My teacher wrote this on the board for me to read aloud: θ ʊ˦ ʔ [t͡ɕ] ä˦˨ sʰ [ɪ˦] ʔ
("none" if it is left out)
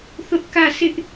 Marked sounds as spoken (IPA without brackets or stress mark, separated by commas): k, ɪ˦